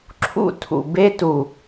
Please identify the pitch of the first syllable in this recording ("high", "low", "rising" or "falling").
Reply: high